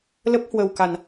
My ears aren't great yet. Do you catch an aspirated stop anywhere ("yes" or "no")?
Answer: no